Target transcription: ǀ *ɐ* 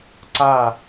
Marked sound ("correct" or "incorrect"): incorrect